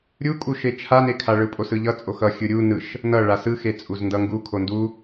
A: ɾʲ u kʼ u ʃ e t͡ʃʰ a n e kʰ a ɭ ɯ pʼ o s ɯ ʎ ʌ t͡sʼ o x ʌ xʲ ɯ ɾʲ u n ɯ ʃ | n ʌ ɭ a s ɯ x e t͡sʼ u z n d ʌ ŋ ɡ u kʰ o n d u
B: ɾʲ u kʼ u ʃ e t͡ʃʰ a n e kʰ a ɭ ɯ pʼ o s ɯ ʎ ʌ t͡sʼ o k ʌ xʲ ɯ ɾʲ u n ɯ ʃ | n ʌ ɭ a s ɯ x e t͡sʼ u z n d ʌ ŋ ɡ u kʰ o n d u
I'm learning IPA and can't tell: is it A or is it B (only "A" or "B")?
A